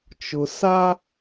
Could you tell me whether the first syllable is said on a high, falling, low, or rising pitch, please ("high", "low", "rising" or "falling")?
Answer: low